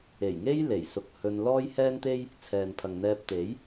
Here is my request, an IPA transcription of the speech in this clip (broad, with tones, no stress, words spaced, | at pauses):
e˨˩jŋe˥j le˨˩jsʊ˧k̚ hɵ˧n lɔː˥jhɛː˥nt̪e˥j | t͡sʰɛː˨npʰɐ˨ŋn̪ɛː˧p̚ t̪e˨˥j